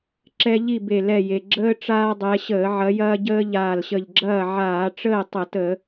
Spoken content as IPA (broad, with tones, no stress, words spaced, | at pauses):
ǁɛ˦ʎi˥˨be˧˩ lɛ˧˩je˩ ɡ͡ǁəː˦ ʈ͡ʂaː˦dˤɛ˨˦ɕəː˧˩˧ ʕɐ˨˦jɐː˦ɟəː˦ ʎaː˧˩lɕə˧˩ʎɡ͡ǁɐː˥˨ ʕaː˧˩˧ʈ͡ʂəː˥˨ tˤə˧˩˧tə˧˩˧